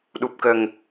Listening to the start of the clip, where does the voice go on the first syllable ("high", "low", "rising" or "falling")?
low